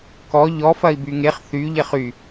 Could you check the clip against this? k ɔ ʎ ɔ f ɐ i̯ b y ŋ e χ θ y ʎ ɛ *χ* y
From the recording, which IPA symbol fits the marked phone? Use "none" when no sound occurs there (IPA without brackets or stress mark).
χ